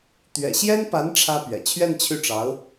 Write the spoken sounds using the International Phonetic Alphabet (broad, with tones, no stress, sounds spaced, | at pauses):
t̪ ɥ ɛ̰˨˩ ɕ j ɛ˥ n p a˧˥ n ʈ͡ʂʰ ä˥ p ɥ ɛ̰˨˩ t͡ɕʰ ɥ ɛ˥˧ n t͡ɕʰ y˥˩ ʈ͡ʂ ɑ˧˥ ʊ̯